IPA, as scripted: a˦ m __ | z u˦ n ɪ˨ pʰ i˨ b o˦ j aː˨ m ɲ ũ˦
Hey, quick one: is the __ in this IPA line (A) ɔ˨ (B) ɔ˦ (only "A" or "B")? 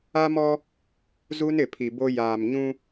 B